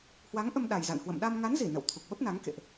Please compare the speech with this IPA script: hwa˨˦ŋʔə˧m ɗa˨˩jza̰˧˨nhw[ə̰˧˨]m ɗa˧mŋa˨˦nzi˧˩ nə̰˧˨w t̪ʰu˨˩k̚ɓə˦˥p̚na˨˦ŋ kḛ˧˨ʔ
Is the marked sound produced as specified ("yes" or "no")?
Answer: yes